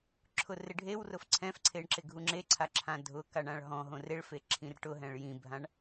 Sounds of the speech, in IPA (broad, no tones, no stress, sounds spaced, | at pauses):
ǁʰ ʊ r ɪ ɖʱ e w r ʊ f ǀʰ ɛ̃ f ǀʰ e ɳ ǁ ɪ ɡʱ u ŋ͡ǁ e ǀʰ a ǁʰ ã dʱ ʊ k a ɳ ã ɭ ɦ ɔ̃ ɦ õ r e ɭ f e ǁʰ ĩ r ʈ ʊ ɦ ɛ̃ ɭ j ĩ bʱ ã ɳ